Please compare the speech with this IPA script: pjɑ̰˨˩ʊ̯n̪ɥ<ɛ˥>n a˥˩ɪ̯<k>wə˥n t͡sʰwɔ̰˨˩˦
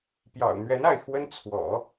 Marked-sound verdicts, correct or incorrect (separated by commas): incorrect, incorrect